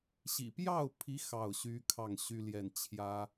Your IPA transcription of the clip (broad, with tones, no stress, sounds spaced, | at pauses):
ɕ ḭ˨˩ p j ɑ˥˩ ʊ̯ pʰ i˧˥ x ɑ˥˩ ʊ̯ ɕ y˥ kʰ ɑ˥˩ ŋ ɕ y˥ l j ɛ˥˩ n t͡ɕʰ j ä˥